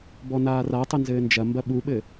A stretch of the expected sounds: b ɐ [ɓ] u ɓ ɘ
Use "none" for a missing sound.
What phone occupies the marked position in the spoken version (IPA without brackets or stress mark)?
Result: ɓ